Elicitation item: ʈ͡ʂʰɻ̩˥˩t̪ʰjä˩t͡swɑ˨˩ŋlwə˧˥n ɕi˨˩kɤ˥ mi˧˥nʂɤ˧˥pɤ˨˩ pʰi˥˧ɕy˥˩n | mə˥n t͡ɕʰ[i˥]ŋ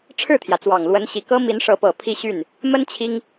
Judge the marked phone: correct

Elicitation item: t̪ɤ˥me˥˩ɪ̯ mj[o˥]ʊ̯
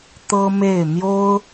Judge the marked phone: correct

